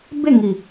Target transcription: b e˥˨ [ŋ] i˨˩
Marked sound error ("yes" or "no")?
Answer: no